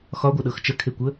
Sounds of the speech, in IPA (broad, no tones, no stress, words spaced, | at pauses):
xɒɡʷɤɗɤx t͡ʃəkʰekʷə